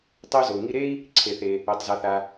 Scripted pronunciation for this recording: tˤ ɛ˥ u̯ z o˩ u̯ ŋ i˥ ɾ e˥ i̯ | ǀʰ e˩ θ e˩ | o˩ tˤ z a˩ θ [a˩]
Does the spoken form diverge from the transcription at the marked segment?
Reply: no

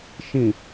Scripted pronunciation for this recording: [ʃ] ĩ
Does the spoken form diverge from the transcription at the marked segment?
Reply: no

